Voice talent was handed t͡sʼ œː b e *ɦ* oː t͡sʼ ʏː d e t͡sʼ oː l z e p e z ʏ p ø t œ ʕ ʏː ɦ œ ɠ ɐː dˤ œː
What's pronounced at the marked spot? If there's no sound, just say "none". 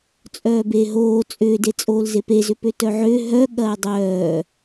ɦ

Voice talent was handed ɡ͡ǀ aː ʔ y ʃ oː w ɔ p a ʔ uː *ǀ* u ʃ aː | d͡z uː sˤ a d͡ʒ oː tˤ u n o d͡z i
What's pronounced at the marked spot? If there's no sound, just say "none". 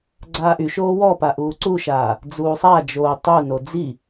ǀ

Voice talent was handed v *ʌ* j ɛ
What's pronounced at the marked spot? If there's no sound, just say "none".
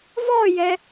ɔ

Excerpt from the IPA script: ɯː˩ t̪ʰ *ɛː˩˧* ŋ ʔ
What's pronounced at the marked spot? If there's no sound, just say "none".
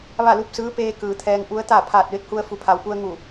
ɛː˧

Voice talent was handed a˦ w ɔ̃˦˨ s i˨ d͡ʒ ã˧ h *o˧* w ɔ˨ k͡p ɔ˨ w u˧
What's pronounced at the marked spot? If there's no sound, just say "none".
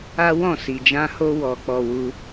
o˧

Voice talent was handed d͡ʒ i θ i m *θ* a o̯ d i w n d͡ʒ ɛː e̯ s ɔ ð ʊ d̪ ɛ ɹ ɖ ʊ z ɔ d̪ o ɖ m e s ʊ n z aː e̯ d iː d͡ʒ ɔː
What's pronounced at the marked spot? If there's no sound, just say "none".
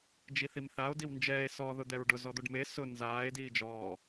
θ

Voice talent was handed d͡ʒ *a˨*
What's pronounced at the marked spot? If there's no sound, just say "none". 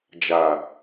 a˨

